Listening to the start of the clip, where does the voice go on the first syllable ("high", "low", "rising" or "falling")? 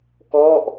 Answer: falling